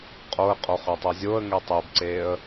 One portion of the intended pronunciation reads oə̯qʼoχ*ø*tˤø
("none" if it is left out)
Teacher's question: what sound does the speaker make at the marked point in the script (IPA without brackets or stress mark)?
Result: ø